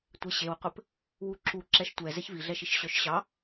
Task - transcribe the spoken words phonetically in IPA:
tʷ e ɕ e w qʷ ɘ p | w u ǁ u ǁ ɛ ʃ tʷ ɛ z ɛ ç v i ɮ ɛ ʃ i ʃ ɕ œ ʃ ɕ ɑ

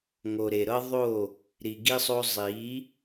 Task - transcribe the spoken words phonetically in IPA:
ŋ o˨ ɾ e˨ ɾ ɤ˦ ðˤ o˦˨ | ɾ i˨ ɡ i˦ sˤ o˦ zˤ i˨˦

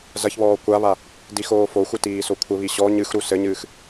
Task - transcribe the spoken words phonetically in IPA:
z ɐ ç β ɔː kʷ a β a | d i x oː f o xʷ ɨ t iː s o kʷʰ ɘ β i ɕ ɔ ɲ ɨ x ɾ u s ɘ ɲ ɨː x

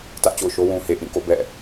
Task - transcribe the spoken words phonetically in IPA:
t ä˦ ʔ t͡ɕ o̰˦˨ ʊ̯ ʃ o˦ w ũ˨ h e˨ ʔ ĩ˦˨ k o̰˦˨ b ɛ̰˦˨

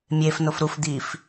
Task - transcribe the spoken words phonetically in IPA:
mʲ e f n o f ɾ u f d̪ i f

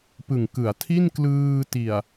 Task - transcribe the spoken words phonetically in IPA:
p ɯ˨˩ ŋ k ɯ˩˦ a̯ tʰ i˥˩ n k l ɯː˧ t i˨˩ a̯

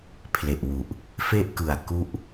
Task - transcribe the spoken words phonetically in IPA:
pʰ l e˨˩ ʔ w u˨˩ ʔ | f e˥˩ ʔ k ɯ˨˩ a̯ k u˦˥ ʔ

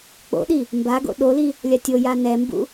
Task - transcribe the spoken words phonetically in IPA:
k͡p o̰ ɗ i | m b a ɡ o̰ ɗ o l i | lʲ a tʲ o j a n ɛ m b ṵ

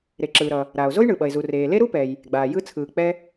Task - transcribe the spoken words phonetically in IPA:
ɾ e˩ ǁ ɯː˩ ɾ ʌ˩ | ɾ aː˩ o̯ z o˥ j ɳ ɯː˩ ɓ ʌ˩ e̯ z u˩ r eː˩ l e˥ ɾ u˥ p ɛ˩ j | ɡ͡b aː˩ j ɯ˥ t͡sʰ ɯː˩ k͡p ɛ˥

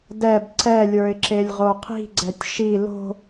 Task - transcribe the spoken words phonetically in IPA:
d ɛ b ǀ ɛ lʲ ə˞ ɪ̯ ǁ e lʲ ʁ o qʰ i̤ ɡ͡ǀ ɛ tʲ ʃ i l o̤

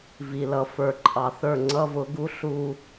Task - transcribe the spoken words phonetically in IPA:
v i˨ l ʌ˧ f ə˞˨ ǃʼ ɑ˨ θ ə˞˦˨ ŋ͡ǀ ʌ˦ v ʊ˨˦ ɡ u˦ ɬ u˧

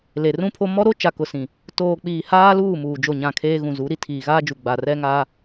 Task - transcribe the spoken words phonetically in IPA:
l e˨ r ũ˦ pʰ o˦ m ɔ˦ ɾ o˦ t͡ʃ a˨ k ʊ˨ s ĩ˨ | t oː˨ k͡p iː˨ h aː˦ l uː˦˨ m uː˨ d͡ʒ o˦˨ ɲ ã˦˨ kʰ eː˦ ɣ ũ˨ z u˨˦ ɾ i˦ tʰ iː˨ ɣ aː˦ d͡ʒ u˨ ɡ͡b a˨ r ɛ˦ ŋ aː˦

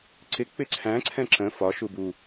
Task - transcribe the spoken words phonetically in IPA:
ǀ ɪ k͡p ɪ ǀʰ æ̃ ǀʰ ɛ̃ ǁ ə̃ f ɒ ʃ u b u

